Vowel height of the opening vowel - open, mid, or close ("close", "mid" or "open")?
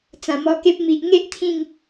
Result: open